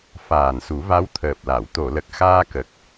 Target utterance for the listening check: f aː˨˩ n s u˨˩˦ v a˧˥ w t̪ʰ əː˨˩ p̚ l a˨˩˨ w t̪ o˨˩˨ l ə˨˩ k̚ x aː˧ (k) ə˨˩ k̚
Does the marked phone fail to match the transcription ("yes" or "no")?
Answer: no